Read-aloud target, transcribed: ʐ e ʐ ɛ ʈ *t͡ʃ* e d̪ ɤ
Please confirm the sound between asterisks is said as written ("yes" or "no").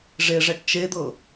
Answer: yes